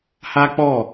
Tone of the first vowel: high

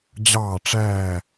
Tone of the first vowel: falling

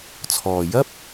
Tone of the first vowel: low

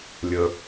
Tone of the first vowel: low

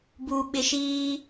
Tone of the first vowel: low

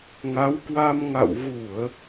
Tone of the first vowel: rising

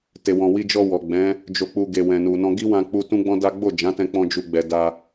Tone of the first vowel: low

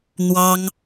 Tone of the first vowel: high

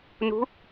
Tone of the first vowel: rising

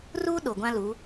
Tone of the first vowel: high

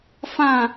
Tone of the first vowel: falling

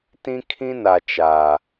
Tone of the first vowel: high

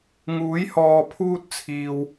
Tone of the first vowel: rising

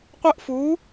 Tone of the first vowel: high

